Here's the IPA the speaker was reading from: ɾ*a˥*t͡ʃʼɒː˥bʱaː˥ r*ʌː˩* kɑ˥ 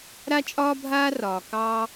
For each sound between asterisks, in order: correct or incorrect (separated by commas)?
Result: correct, incorrect